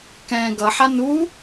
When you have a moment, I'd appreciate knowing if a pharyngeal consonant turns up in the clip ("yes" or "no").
yes